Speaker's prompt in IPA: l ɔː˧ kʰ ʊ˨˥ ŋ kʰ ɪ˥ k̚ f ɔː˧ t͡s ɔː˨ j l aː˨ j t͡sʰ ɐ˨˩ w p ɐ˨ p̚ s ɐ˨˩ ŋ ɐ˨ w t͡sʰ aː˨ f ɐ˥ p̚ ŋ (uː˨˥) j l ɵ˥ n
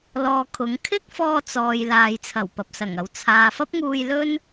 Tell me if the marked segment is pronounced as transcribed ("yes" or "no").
no